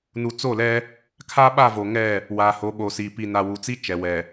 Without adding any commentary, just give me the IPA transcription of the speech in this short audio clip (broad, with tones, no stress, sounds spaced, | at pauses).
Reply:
n u˨ t͡s o˦˨ l ɛ˦ | kʰ a˦ ɓ a˦˨ v o˨ ŋ ɛ˦˨ | w aː˨ h o˨˦ ɓ o˨ s iː˨ p i˨ n a˨ w u˨ t͡s i˦ t͡ʃ ɛ˨ w ɛ˨